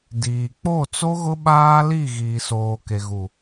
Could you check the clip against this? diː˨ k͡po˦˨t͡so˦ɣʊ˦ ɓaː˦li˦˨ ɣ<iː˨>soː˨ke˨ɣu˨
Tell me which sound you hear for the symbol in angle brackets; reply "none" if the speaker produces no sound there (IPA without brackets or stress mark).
iː˨